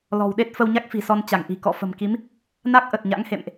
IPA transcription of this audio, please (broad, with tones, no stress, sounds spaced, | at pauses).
l ɔ̤˨˩ w ɗ e˦˥ t̚ f ə˧ w ɲ a˦˥ k̚ f i̤˨˩ s ɔ˧ n t͡ɕ a˧˩ ŋ ʔ i̤˨˩ k ɔ̰˧˨ f ə̤˨˩ m k i˨˦ m | n a˦˥ k̚ ʔ ə˨˩ t̚ ɲ a̰˧˥ ŋ h ḛ˧˨ m ʔ